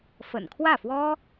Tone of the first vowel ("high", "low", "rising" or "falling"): low